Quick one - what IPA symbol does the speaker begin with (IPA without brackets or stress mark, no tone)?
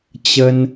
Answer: t͡ɕ